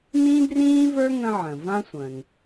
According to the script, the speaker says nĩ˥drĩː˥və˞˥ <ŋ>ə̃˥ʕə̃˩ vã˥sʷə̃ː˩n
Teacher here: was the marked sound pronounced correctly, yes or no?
yes